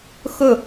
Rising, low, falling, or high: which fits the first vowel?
falling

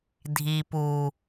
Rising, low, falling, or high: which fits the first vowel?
low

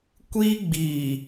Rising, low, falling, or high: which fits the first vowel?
high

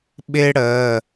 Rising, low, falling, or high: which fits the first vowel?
high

